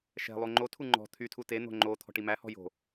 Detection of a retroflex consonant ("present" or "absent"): present